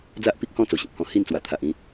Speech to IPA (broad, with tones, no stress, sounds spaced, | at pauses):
d͡z a˦ ʔ p i˦ k̚ h ɔ̃˥˧ t͡s o˨˩ ɕ ĩ˨ p̚ h ɔ̃˧ h i˥˧ n t͡s w a˨˩ t̪ʰ a˨ ʔ ĩ˧